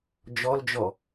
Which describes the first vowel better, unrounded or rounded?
rounded